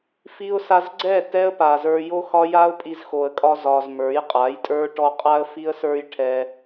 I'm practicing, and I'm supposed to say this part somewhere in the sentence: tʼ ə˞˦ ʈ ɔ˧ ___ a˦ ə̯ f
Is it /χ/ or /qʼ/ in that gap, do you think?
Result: qʼ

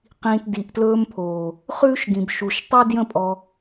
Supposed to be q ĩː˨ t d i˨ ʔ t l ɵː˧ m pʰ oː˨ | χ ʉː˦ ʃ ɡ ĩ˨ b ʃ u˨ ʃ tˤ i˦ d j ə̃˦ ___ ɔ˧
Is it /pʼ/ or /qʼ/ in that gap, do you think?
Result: pʼ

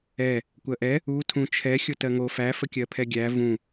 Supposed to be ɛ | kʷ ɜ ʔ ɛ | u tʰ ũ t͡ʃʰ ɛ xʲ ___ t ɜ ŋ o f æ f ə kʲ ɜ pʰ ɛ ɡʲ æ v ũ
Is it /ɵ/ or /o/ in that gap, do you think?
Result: o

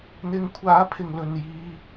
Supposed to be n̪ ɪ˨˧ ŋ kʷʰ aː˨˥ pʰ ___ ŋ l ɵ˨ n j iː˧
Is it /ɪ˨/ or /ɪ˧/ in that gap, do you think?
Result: ɪ˨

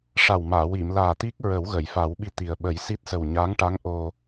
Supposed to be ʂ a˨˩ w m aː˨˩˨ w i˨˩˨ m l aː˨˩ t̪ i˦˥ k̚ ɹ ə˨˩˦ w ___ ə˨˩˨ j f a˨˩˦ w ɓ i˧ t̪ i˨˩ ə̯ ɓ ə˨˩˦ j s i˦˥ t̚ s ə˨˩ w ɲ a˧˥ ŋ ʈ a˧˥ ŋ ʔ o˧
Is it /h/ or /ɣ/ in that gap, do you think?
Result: ɣ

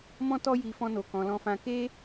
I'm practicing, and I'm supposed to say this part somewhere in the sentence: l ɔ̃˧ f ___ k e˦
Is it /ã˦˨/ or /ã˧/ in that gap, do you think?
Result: ã˧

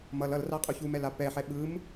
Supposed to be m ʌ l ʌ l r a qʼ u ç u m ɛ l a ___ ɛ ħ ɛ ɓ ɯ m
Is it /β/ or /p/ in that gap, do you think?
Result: p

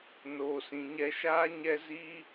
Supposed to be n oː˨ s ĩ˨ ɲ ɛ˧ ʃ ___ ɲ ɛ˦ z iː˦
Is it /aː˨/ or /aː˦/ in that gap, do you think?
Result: aː˦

